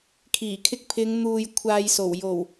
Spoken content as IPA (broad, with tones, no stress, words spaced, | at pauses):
kʰiː˨˩kʰɪ˧k̚ pʰɪ˨˧ŋ n̪uː˨j kʷʰaː˨jso˨˩w jo˨˩w